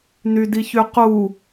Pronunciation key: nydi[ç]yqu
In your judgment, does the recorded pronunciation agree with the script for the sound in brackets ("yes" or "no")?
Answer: yes